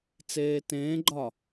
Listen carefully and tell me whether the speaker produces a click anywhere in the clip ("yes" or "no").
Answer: yes